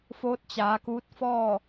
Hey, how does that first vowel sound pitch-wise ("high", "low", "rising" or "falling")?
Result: rising